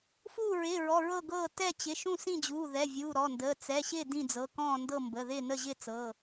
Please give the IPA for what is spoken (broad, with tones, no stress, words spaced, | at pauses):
fuː˥˨ɹɪː˩˧˩ɹɔ˩˧˩ ɹɤ˥˨ɡɤː˥˨ tɛ˥˨t͡ɕɪ˩˧˩ʃũ˥˨ sĩ˥˨d͡ʑuː˩˧˩ðɛ˩˧˩ vʲuː˩˧˩ɾɔ˩˧˩ndəː˩˧˩ t͡sɛ˩˧˩ɕɪː˥˨ dĩ˥˨d͡zɤ˩˧˩ kɔ̃ː˥˨ndɤ˥˨ mbə˩˧˩ðɪː˥˨nə˥˨ʑɪː˥˨ t͡sɤ˩˧˩